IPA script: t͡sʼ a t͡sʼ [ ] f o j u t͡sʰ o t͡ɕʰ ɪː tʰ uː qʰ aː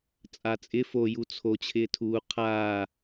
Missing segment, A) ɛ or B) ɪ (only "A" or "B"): B